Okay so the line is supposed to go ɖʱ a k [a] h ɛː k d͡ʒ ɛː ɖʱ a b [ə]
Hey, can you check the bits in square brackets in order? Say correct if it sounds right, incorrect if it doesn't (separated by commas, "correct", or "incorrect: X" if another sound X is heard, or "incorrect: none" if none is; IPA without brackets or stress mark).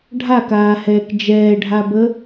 incorrect: aː, correct